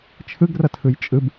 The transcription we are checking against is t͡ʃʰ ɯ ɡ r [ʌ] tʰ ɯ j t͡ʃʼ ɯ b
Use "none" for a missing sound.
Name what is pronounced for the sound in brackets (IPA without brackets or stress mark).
ʌ